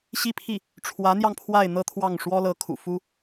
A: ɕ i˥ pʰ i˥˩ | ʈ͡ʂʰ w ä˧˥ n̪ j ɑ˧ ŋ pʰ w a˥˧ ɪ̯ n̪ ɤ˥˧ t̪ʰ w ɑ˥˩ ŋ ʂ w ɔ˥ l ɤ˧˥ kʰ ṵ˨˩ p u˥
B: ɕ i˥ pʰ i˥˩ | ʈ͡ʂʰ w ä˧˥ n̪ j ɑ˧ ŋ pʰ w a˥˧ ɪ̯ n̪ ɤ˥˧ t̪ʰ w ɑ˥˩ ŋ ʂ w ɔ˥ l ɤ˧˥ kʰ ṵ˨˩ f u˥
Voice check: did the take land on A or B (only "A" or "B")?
B